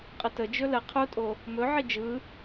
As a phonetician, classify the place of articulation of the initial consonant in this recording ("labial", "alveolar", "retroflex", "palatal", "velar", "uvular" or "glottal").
uvular